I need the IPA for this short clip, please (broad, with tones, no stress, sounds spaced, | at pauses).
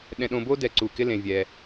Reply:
ɗ ɛ̃˧ ɗ õ˧ b o˥ d ɛ˧˩ ǀ u˧˩ k ɪ˥ l ẽ˧ vʲ ɛ˧